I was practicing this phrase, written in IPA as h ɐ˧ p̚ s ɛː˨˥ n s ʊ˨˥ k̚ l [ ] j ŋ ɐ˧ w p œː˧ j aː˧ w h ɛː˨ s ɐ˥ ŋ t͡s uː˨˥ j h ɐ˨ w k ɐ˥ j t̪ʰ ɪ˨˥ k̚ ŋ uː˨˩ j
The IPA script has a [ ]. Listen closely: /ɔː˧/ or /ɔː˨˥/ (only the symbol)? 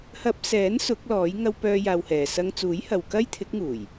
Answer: ɔː˨˥